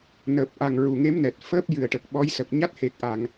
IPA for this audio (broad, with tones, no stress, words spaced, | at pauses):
nəː˨˩p̚ʔa˨˩ŋ ɹu˨˩ŋe˧˥mnɛ˨˩t̚ fəː˦˥p̚jɨ˨˩ə̯ʈə˨˩k̚ ɓɔ˧˥jsə˨˩k̚ ɲa˦˥t̚he˨˩k̚ʔa˨˩˨ŋ